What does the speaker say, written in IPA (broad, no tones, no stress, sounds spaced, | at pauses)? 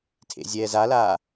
tʰ ḛ zʲ ɛː z a l aː